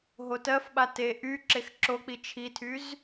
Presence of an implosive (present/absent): present